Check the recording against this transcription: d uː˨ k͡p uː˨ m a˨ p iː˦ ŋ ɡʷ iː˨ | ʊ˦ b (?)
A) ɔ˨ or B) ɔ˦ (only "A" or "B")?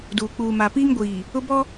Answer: B